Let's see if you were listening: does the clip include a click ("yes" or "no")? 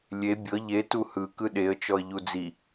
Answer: no